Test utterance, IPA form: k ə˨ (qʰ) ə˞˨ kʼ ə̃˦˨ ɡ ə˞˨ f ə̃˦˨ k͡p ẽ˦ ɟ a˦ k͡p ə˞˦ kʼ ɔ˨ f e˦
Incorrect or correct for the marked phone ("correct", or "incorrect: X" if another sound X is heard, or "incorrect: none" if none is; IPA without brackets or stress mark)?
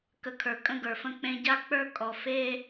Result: incorrect: kʰ